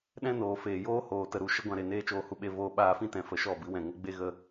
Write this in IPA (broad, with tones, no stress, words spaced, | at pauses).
ɗɛ̃˦noː˨feː˨joː˦ hoː˨ tə˧ɾu˧ ʃə˦ɡʷã˧ɾe˨neː˦ t͡ʃoː˧hu˧ɓe˧ voː˧ɓaː˧fĩ˦ tɛ̃˨˦fə˨ʃɔ˦˨ bɨ˨˦wɛ̃˨ŋə˦ ɡ͡be˦ɣə˧